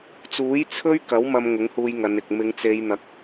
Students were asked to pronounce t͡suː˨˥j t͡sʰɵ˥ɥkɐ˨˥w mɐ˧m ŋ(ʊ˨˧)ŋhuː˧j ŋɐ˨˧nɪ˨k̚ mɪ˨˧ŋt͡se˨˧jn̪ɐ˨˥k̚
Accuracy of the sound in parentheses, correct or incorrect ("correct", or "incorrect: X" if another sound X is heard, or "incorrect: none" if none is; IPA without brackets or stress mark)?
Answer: incorrect: ʊ˨˥